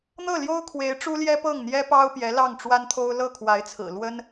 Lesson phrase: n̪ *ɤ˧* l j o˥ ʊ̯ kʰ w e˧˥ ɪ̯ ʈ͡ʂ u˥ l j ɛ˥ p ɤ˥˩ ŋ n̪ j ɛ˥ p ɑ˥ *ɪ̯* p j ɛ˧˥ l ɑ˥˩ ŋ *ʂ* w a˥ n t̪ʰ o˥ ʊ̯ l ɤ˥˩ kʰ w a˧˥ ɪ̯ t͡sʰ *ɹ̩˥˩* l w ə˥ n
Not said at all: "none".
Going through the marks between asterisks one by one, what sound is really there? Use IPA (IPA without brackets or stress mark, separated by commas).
ɤ˥˩, ʊ̯, ʈ͡ʂ, ɹ̩˨˩